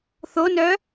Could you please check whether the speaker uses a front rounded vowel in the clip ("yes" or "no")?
yes